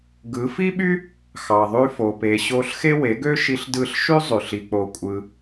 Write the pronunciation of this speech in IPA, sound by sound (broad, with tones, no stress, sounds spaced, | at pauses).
ɡ ɯ˨˦ f i˦ ɓ y˦ | x ɑ˨ ðˤ y˧ f o˨ p e˨ ɕ o˧ ɬ x e˦ w e˨˦ ɡ ø˦ ʃ i˧ ɬ d ɯ˦˨ ɬ ʃ y˦ zˤ y˨ ɬ i˧ k͡p o˧ kʷʼ ɯ˧